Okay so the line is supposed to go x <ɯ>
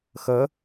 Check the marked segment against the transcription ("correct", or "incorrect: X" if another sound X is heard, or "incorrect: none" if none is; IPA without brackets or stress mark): incorrect: ə